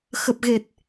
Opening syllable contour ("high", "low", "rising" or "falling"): low